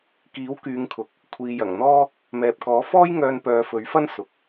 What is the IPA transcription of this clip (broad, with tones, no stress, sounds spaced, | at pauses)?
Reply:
k iː˨˥ w k yː˨˧ ŋ kʰ ʊ˨ k̚ | kʷʰ iː˨ j ɐ˨˩ ŋ n̪ ɔː˥ | m ɛː˨ p̚ k ɔː˨˥ f ɔː˥ j ŋ œː˧ n p œː˨˧ f ɵ˨˥ ɥ f ɐ˥ n s ʊ˨˥ k̚